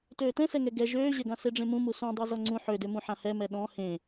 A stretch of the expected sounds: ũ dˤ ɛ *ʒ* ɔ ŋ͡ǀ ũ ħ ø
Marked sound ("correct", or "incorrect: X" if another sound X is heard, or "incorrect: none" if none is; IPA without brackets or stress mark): incorrect: z